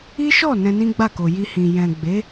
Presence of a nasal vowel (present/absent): present